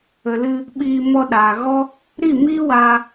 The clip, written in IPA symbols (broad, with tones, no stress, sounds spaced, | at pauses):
ə˨ l ɨ˧ | ɓ iː˧ m ɔ˧ ɗ aː˨ ɣ ɔ˦ | ɾ i˦˨ m iː˦ w aː˧